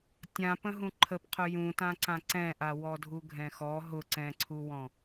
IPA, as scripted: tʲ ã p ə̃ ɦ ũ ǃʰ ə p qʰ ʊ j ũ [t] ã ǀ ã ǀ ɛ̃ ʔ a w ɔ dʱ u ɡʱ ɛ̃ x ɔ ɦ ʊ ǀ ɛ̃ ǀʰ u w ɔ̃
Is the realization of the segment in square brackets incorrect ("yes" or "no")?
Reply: no